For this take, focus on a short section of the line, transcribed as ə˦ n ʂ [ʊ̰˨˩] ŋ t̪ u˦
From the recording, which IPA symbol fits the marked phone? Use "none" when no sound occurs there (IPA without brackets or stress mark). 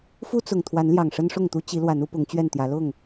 ʊ˥˨